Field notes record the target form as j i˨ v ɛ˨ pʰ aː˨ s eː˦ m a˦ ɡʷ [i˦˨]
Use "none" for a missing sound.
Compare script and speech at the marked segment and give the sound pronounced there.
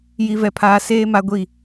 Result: i˦˨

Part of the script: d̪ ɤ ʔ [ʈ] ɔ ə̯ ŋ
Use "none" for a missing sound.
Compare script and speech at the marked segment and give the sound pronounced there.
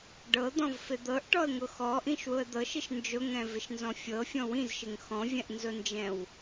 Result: ʈ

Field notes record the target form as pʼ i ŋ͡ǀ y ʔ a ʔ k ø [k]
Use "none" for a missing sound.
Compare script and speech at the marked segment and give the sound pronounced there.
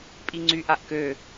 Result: none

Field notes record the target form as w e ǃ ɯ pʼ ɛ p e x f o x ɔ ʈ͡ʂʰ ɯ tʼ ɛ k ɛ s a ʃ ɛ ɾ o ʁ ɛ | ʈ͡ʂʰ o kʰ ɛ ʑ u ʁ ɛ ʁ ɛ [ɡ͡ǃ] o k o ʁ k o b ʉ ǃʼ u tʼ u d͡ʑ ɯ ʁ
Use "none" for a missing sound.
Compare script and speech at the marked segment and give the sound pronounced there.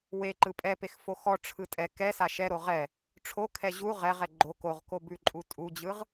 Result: ɡ͡ǃ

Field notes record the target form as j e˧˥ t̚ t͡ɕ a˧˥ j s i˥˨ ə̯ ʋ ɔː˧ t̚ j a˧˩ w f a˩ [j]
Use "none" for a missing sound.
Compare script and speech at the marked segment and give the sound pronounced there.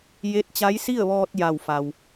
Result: w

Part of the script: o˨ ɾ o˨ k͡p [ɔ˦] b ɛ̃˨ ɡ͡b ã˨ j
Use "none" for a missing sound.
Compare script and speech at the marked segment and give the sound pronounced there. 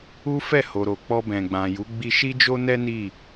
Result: ɔ˧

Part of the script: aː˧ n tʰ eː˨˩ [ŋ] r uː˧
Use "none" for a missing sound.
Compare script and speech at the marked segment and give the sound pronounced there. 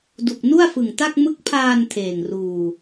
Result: ŋ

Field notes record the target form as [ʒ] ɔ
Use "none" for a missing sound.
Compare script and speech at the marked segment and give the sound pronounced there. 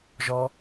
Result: ʒ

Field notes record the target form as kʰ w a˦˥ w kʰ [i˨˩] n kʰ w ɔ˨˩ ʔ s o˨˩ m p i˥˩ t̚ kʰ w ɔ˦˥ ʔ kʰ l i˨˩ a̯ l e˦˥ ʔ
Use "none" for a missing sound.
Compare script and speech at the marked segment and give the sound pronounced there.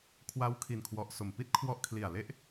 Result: i˨˩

